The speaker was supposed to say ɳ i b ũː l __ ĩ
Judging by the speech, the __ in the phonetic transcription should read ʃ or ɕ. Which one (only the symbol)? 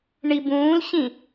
ɕ